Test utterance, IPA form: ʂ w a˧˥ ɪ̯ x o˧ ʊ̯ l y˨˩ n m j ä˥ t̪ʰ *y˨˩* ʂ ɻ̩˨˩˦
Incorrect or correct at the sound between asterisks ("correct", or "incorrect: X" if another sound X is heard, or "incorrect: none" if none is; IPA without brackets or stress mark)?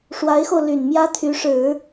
incorrect: y˧˥